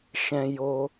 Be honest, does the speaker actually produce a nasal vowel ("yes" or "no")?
yes